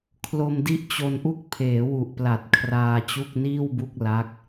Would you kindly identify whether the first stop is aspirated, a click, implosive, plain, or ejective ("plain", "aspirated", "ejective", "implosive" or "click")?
aspirated